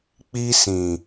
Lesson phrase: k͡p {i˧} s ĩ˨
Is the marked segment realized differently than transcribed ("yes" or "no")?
no